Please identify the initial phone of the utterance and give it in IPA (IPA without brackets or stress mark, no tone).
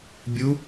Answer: bʲ